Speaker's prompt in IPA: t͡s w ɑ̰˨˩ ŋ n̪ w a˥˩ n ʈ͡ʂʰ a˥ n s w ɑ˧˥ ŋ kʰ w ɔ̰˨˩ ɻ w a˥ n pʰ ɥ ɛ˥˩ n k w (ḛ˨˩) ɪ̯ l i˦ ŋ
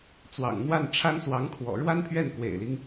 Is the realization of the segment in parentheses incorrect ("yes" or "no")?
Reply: no